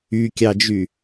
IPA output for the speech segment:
ykʲɑd͡ʒy

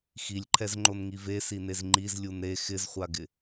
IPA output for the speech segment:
xilʲǃʰɛzŋ͡ǃonŋi vesinez ŋ͡ǃizlʲun ɾe xɪzχʷaɡɪ

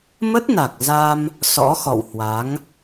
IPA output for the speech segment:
mə˦˥t̚na˨˩k̚ za˧m | sɔ̰˧˥xɔ̰˧˨whwa˨˦ŋ

